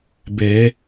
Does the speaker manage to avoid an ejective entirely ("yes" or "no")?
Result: yes